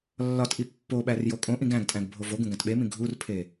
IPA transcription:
lːɒtʔi pːoɓær jokʼõʔĩɡ æ̃ɡtʼæ̃ɡ bʱovoɡũ ɡæ̃tɓemĩ ɡʱurpʰe

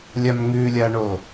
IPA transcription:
lʲamŋʉlʲaɳo

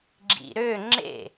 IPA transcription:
ɡ͡ǁḭɾø ŋ͡ǁḛ

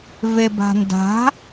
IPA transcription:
veba̤nda̤

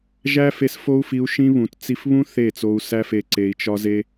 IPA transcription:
ʒæ˦fe˧s fo˦u̯fi˧u̯ʃĩ˦ βũ˨t t͡si˧f βũ˦ θe˦˨t͡so˧u̯ sæ˦fe˧ ǀe˧i̯t͡ʃɒ˦ze˦

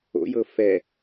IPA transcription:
o̰jɤ fɛ

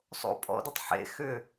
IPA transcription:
sˤo̰ pʼɔ̰dɨtˤ ħḛ xʏ

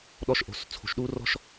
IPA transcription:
ɗɔ˥ʃʔo̤˧s t͡sʰo̤˧ʃɗuː˥rɔ̤˥ʃ

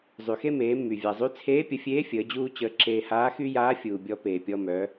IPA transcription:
zˤy˩xe˥meː˩˧mːy˩ vʲa˩zˤy˧˥ t͡sʰeː˧˥pʲə˩˧fʲeː˧˥ fʲəː˩˧d͡ʑuː˥t͡ɕəː˧ ǁeː˧haː˧˥xy˥jaː˧˥ fʲuː˩bʲɔ˧peː˩ pʲɔ˧mœ˩˧

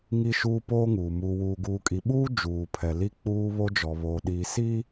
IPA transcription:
ŋi˦ʃuː˦ poː˦ŋuː˨ muː˨wuː˨ɡuː˨kʼi˨ ɓuː˦ d͡ʒuː˨pʰɛ˨li˦ k͡puː˦ βo˦d͡ʒɔ˨βoː˨ɗiː˨ si˦

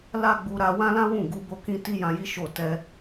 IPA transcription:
la˦ɡ͡bu˧ ɾa˧wã˦lã˦wũ˦˨ ɡu˧bo˧kĩ˧ ti˦jã˧ji˦ ʃo˦˨ tɛ˧

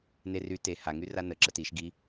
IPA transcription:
ner y te haŋy ranəǁə tiʃ ɡi

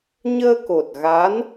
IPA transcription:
ɲəː˧ko˨˩t̚ɣa˧˥n

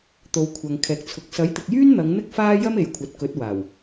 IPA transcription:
t̪o˨wkʷʰɐ˨ŋ kʰɛː˨k̚t͡sʰʊ˨˥k̚ sɐ˨˥jt̪ɪ˨k̚jyː˥nn̪ɐ˨˧ŋ n̪ɪ˥k̚faː˥ jɐ˥me˨jkʷʰɐ˨t̚ kɵ˨˥t̚waː˨˩w

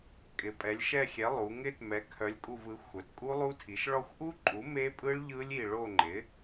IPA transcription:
kʼɪ˩˧pʼɛ˩˧lʲʃɛ˦˨xʲɛ˩˥ lˠu˩˧ŋɪ˦˥t mɛ˩˥kʰœ˩˥lʲ kʼu˦˨vɯ˩˥ xʷœ˩˧tkʼu˦˥lˠu˦˥tʰi˩˥ʃ ɭɔ˦˨xʷʔu˦˥ǃʼu˩˥ me˦˥pʼɯ˦˥ɭ ʎɯ˦˥lʲi˦˨ ɭo˦˨ŋ͡ǃɪ˩˥

